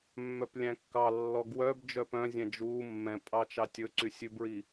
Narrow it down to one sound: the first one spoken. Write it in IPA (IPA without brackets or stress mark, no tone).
mː